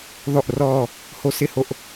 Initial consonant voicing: voiced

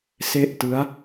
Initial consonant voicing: voiceless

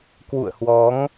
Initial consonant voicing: voiceless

